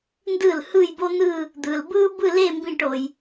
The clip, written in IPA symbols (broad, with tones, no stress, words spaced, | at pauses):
ndɯ˥˩lhɯ˥˧jbo˥n̪ɯ˥˧ | d̪ɯ˨l bɯː˥bɯ˥˧le˥˧ mbĩ˥˧ʈo˨j